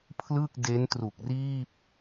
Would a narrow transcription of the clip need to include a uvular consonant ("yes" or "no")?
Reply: no